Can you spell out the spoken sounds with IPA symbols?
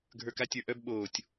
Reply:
ɡʱ ə˞ k a tʲ ə˞ ʔ œ b ɓ oː tʲ

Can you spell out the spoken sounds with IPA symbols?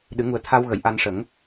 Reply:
ɗ ɨ˨˩˦ ŋ u˨˩ ə̯ t̪ʰ a˧ w ɣ ə˨˩˨ j ʔ a˧ n ʂ ə˨˩˦ ŋ

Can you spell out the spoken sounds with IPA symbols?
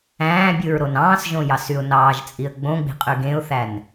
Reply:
æ̃ː bʲ ɯ ɹ ɾ o n ɑ̃ː s ʒ õ j ɑ s y ʊ̯ n ɑː ʒ t͡sʼ i ə̯ ɡ͡b õ ɡ͡b i̤ qʼ y ɡ ẽ ʊ̯ θ æ n

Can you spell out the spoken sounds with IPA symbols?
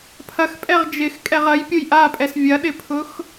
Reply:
pʰ ɐ x pʼ ɛ ʁ d͡ʒ ɪ x kʼ ɛ ʁ ɐ j pʲ ʊ j ʔ a pʼ ɛ s vʲ ɐ ɗ ɪ pʰ ʊ x

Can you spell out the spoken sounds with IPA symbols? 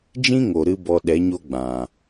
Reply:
d͡ʒ ĩ˦ ŋ o˨ ɾ ɨ˧ b ɔ˧ ɗ ɛ˨˦ ɲ o˦ ɡ͡b ã˨

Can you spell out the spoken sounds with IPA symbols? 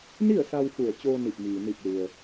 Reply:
n i˥˨ ə̯ s a˧ w f u˧˩ ə̯ t͡ɕ oː˧ n i˧˩ p̚ m iː˩ n i˧˩ k̚ l u˩ ə̯

